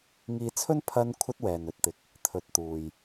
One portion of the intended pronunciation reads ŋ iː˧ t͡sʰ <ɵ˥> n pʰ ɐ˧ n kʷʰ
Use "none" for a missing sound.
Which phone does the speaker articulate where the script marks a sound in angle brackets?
ɵ˥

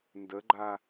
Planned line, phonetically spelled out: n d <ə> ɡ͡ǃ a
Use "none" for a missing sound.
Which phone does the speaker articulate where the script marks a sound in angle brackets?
ə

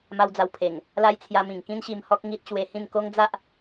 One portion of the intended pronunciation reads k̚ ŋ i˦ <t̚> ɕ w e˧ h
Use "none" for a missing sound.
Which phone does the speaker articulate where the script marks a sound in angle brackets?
t̚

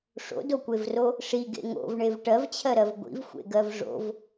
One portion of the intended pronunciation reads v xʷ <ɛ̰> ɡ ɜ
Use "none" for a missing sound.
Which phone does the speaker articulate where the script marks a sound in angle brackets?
ḛ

